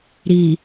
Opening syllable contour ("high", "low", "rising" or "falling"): low